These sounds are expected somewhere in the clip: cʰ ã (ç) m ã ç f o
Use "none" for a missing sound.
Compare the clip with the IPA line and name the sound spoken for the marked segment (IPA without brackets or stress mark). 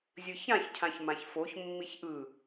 ç